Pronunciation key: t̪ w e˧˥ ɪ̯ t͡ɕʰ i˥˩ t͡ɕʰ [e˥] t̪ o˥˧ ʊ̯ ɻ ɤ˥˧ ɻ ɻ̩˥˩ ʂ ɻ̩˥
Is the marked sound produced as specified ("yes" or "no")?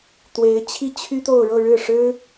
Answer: no